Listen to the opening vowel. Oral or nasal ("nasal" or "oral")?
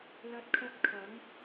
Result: oral